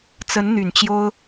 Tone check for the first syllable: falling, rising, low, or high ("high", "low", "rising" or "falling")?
rising